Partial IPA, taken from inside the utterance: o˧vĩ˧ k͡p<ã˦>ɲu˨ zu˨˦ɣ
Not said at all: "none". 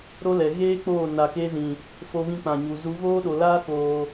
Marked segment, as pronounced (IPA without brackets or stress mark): ã˨